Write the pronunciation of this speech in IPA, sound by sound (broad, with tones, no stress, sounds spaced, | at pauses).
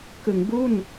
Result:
k ɯ˩˦ ŋ b u˥˩ n